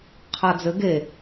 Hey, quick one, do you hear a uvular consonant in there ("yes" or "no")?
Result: yes